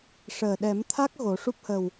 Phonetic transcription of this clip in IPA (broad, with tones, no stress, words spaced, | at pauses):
ʂəː˨˩ɗɛ˨˩˦mt̪ʰa˦˥k̚ ɣo˨˩˦ ʂu˦˥p̚hə˨˩w